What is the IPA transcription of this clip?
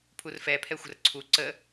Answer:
pʰurfɛpʰɛ xʷə̤rǀʰu ǀə

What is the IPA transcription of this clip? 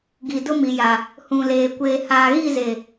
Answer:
ɡi˨dʊ˦mi˨ja˨ | hũ˨leː˨ kʷeː˨haː˨ɣi˦˨ze˨

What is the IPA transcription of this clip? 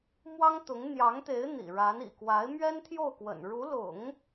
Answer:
mwɑ˥ŋt̪ʊ˧˥ŋ n̪jɑ˧˥ŋt̪e˧˥ɪ̯ n̪ḭ˨˩ɻa˧˥n ḭ˨˩kwa˧˥ɪ̯ mɥɛ˥nt̪ʰjo˥˩ʊ̯kwə̰˨˩n ɻu˧˥lʊ̰˨˩˦ŋ

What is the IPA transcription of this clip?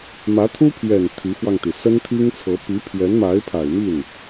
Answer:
mä˧˥t̪ʰu˥pʰɥɛ˨˩n t̪ʰi˧˥fwɑ˧ŋt̪i˩ sə˥nt̪ʰi˥ŋt͡sʰɤ˧˥ pi˧˥pʰɥɛ˧˥n ma˧˥ɪ̯pʰa˨˩ɪ̯mi˥˩n

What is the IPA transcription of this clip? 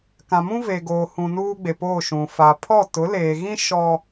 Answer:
kã˨mũ˦ve˨ ɡoː˨hũ˨ nuː˦ɡ͡be˨poː˦˨ ʃũ˨ fa˨ pʰɔ˦˨tʊ˨˦leː˨ɣĩ˦ ʃɔ˦

